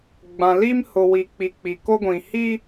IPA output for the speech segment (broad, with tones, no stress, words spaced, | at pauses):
ɡ͡bã˨li˦m hʊ˨wi˨k͡pi˨ k͡pi˨ko˦ɡʷĩ˨ hi˦